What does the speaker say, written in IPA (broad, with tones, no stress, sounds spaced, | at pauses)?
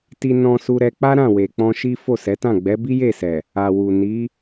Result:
t i˧ n ɔ̃˧ s u˧ ɾ ɛ˧ k͡p a˦ ɾ ã˦˨ w e˨ k͡p ɔ̃˧ ʃ i˦ f o˦˨ s ɛ˨˦ t ã˦˨ ɡ͡b ɛ˨˦ b i˦ j e˦˨ s ɛ˨ | a˨ w u˨ n i˨˦